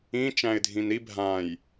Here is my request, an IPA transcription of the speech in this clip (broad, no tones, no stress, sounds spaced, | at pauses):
ĩ t͡ʃ æ̃ ɪ̯ dʱ ĩ n ɾ i bʱ ã j